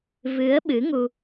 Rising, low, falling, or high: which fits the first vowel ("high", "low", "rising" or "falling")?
rising